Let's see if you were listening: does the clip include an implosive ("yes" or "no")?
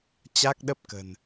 yes